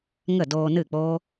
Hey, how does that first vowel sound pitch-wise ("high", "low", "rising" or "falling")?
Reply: falling